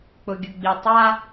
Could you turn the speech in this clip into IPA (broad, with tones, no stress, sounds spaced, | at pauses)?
k͡p ʊ˨ ɡʲ ʊ˨ ɡ͡b i˨ tˤ a˦